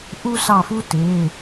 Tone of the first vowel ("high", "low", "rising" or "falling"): high